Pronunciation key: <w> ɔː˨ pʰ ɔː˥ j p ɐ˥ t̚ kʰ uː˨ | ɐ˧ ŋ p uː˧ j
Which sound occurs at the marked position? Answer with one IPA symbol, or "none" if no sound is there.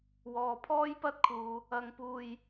w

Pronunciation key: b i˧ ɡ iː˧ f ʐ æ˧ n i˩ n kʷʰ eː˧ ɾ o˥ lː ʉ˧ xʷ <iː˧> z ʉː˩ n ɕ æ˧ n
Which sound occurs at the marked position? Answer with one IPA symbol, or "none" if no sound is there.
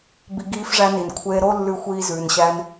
iː˧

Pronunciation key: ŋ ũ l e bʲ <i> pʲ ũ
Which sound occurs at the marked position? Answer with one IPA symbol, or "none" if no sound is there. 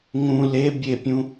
e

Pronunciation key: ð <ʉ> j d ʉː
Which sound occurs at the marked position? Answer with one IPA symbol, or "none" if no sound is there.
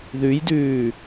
ʉ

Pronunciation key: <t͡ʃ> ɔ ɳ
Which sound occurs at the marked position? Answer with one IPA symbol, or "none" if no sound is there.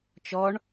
t͡ʃ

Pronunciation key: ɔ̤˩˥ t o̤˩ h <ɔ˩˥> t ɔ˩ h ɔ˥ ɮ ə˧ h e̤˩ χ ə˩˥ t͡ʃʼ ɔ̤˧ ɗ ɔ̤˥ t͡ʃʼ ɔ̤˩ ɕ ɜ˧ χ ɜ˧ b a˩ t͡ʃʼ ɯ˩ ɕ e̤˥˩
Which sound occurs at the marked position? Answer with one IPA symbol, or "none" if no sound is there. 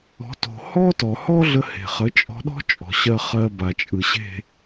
ɔ˥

